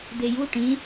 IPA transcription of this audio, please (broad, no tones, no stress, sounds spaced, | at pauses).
d̪ e j u ʈ ĩ